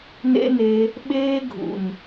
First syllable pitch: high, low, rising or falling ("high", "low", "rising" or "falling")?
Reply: high